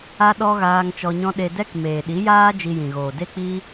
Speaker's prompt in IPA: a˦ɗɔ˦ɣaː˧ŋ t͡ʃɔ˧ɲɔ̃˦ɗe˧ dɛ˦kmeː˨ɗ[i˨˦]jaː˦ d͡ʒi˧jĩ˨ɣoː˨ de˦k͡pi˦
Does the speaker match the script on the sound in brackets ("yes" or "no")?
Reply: yes